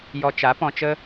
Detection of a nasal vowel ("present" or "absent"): present